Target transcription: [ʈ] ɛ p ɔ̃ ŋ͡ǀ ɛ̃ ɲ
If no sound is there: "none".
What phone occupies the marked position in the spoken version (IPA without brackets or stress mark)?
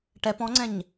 ʈ